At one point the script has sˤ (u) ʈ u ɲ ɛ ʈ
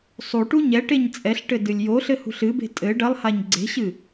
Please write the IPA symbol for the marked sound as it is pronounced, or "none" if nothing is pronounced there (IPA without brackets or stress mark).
u